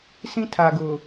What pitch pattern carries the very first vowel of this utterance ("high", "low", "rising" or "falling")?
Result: high